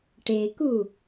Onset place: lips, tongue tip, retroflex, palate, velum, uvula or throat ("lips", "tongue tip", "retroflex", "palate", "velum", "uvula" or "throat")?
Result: retroflex